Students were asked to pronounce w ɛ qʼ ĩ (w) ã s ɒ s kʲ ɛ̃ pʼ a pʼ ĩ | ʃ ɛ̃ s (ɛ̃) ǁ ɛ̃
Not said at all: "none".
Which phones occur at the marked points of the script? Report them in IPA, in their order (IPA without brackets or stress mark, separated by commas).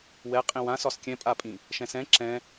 w, ɛ̃